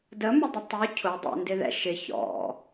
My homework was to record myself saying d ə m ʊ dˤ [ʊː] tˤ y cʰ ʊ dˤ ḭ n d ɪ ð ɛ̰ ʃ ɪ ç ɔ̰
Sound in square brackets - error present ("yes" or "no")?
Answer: yes